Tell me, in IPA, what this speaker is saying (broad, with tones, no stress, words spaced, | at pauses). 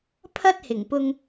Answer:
pʰɐ˥t̚hɪ˨˩ŋpʊ˧ŋ